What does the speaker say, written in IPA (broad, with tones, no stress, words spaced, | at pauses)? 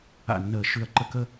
a̰˧˩nːəː˨˩˦ ʃʉ˧˩ɐ̯ǃə˥˨ kə˥˨